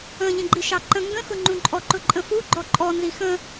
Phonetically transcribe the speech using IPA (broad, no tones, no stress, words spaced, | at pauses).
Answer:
ə̃ ʎə̃ɡ͡ǃiʃɑǃə̃ ŋɡə̃xʊŋ͡ǃũ ǃʼɔǃʊǃʼə̃fu ɡ͡ǃɔǃʼɔnzi xə̃